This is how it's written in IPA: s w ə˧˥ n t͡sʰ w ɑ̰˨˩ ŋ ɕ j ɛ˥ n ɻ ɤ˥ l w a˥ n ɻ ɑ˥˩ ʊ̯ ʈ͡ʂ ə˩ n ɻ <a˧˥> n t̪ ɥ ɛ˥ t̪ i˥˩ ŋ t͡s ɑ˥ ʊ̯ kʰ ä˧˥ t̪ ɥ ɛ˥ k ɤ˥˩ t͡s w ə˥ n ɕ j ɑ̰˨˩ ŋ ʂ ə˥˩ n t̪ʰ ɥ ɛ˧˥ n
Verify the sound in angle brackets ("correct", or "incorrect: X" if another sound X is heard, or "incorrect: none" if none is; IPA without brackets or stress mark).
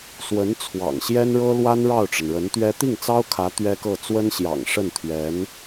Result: incorrect: ə˧˥